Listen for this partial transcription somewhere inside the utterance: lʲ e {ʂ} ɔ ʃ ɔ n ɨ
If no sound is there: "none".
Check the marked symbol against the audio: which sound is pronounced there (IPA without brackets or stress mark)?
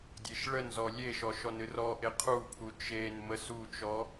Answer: ʃ